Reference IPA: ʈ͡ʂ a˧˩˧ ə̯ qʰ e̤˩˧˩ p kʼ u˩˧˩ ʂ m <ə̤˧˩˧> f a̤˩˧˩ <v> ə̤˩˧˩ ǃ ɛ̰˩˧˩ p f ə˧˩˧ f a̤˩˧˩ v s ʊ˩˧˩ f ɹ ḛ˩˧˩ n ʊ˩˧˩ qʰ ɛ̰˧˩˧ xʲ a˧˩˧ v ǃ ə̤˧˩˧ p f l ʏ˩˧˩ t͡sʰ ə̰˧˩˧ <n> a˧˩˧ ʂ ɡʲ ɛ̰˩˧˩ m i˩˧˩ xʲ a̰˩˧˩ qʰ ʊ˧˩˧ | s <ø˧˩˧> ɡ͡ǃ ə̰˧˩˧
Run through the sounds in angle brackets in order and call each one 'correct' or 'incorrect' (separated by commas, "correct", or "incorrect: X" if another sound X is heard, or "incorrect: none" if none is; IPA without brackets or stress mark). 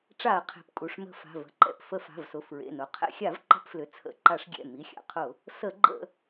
correct, correct, incorrect: ǃ, incorrect: ə˧˩˧